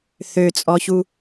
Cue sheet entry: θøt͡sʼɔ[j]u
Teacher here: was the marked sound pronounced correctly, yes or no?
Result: no